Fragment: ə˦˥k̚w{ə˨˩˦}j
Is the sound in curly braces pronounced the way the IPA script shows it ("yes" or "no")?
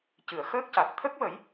yes